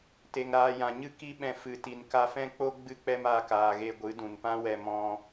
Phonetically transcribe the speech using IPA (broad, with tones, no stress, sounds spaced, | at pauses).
t e˨ ŋ ɾ aː˧ j ã˨ ɲ ɨ˦ k i˦ ɓ ɛ̃˧ f ɨ˨ t i˨ n k a˧ f ɛ̃˦ k͡p o˦ ɡ͡b ɨ˦ k͡p ɛ˦ m aː˧ k aː˨ ɣ e˧ ɡʷ ɨ˨˦ d ũ˨ n p ã˦ w ɛ˧ m ɔ̃˧